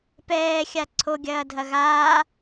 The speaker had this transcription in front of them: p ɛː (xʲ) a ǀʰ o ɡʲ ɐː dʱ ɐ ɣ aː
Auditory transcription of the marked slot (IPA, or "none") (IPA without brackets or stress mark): xʲ